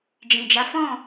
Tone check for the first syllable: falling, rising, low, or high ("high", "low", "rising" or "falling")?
low